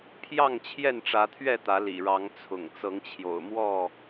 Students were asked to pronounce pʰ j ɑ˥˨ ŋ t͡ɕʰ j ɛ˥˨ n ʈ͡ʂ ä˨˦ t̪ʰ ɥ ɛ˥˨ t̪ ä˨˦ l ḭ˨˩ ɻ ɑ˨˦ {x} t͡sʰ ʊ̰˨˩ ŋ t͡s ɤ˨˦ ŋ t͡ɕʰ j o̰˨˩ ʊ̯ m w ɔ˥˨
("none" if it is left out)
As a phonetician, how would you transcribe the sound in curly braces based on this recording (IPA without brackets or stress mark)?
ŋ